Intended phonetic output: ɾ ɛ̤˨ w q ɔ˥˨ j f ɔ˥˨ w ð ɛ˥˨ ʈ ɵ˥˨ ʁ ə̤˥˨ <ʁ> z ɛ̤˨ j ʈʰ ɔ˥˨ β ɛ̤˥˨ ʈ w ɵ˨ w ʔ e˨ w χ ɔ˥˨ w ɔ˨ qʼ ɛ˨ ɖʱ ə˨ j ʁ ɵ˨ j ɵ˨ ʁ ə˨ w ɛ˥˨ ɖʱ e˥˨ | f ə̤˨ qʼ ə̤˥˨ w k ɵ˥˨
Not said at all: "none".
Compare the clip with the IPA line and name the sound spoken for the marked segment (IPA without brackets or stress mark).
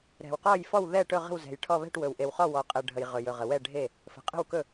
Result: w